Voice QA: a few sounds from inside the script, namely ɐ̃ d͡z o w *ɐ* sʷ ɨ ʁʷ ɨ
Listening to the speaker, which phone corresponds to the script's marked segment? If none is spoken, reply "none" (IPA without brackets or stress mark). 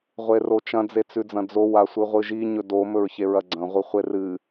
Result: a